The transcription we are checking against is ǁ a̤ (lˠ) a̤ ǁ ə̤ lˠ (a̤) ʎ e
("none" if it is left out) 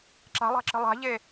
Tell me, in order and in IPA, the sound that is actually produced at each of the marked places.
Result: lˠ, a̤

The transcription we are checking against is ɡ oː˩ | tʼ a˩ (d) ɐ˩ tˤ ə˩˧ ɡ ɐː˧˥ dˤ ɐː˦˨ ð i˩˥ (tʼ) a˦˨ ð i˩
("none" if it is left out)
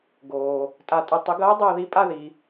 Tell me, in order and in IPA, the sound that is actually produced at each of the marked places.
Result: tʼ, pʼ

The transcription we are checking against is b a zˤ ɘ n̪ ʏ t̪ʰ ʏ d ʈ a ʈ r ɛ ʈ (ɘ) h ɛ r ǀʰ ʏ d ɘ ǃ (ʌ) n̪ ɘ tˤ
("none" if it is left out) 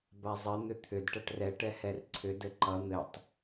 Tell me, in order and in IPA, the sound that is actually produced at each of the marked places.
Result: ɛ, ʌ

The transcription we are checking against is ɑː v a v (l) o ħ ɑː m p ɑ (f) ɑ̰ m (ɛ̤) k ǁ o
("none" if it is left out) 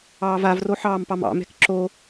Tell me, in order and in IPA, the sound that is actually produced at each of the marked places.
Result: r, m, ɛ̤

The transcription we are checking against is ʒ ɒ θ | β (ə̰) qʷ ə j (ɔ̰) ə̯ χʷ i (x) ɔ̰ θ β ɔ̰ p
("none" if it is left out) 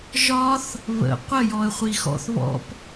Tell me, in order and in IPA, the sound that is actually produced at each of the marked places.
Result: ə̰, ɔ, x

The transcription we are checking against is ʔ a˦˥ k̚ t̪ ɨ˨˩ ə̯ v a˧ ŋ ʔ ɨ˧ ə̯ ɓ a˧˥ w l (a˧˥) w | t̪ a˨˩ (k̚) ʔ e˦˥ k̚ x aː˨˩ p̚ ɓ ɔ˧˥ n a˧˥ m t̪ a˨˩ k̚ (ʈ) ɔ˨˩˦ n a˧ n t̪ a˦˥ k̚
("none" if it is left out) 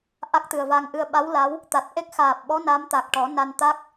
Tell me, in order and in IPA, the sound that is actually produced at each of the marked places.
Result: a˧˥, t̚, ʈ

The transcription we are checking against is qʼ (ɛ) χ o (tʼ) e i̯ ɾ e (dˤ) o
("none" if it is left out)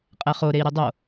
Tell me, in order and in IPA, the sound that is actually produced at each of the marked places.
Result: ɛ, ɾ, dˤ

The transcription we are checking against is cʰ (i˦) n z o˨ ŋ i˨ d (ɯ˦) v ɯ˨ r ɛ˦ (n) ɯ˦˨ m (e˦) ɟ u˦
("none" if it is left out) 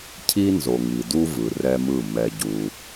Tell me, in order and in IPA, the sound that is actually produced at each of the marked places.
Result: i˦, u˦, m, ɛ˦

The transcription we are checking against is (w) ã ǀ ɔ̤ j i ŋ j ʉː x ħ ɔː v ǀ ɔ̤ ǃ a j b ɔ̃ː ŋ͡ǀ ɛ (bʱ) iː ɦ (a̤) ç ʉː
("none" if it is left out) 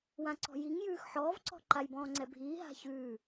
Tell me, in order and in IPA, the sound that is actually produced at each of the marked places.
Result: w, bʱ, a̤

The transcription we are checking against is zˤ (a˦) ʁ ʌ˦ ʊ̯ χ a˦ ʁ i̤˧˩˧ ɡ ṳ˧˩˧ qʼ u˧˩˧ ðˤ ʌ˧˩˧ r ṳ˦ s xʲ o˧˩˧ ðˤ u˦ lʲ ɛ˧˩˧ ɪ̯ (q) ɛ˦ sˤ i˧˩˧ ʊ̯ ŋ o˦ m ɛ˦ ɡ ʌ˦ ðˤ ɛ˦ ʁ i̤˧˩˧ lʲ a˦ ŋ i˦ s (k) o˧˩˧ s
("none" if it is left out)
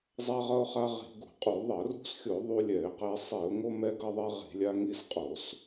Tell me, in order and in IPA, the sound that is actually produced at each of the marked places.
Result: a˦, q, qʼ

